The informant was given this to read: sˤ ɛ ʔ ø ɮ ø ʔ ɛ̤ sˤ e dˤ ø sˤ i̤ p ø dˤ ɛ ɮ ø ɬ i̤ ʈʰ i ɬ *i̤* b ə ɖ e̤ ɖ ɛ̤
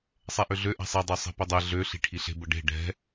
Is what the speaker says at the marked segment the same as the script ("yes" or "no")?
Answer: no